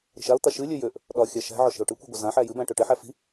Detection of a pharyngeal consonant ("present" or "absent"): present